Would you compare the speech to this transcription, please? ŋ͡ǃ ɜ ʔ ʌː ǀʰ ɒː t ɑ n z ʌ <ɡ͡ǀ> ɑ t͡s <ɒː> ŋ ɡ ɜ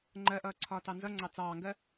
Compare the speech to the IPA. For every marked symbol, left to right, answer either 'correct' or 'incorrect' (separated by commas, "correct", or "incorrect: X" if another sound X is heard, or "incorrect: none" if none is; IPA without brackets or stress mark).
incorrect: ŋ͡ǀ, incorrect: ɑː